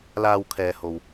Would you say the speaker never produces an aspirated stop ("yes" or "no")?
no